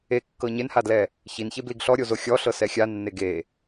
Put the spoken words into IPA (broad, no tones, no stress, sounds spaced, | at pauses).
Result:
e kː ɤ ɲ e n h a d l ɛ | ç i n ç e b l i ɡ ɬ ɔ ɾʲ o z o xʲ ɔ ɬ ɤ s ɛ xʲ a nː e ɡ e